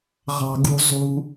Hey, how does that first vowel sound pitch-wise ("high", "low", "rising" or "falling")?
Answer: low